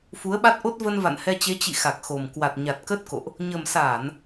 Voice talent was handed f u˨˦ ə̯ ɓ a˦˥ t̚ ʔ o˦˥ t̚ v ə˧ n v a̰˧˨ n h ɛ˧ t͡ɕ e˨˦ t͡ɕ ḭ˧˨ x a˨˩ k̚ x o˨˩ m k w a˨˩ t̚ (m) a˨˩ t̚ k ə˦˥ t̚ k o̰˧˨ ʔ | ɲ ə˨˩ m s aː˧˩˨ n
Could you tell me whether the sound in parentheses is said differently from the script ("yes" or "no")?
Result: yes